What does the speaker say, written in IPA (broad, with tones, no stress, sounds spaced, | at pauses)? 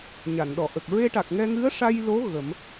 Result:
ɲ a˨˩˨ n ɗ ɔ˨˩˨ ʔ ə˨˩ k̚ ɹ e˧ ʈ a˨˩ k̚ ŋ ɛ˧ ŋ ɨ˧˥ ə̯ ʂ a˧ j l o˧˥ ɣ ə˨˩˦ m